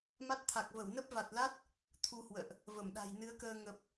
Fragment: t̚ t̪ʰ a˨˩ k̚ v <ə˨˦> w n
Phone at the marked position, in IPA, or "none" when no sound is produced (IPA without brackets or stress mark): ə˧˩